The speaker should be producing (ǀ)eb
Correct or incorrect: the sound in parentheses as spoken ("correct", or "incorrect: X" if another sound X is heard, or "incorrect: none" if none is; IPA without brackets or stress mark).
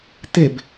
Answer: incorrect: t̪